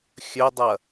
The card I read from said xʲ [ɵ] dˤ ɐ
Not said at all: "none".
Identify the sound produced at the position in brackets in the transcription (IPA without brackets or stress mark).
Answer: ɵ